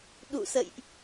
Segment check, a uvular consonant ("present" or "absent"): absent